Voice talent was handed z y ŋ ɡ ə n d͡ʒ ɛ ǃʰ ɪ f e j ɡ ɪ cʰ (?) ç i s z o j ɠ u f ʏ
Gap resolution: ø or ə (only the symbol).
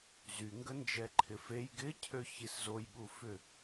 ø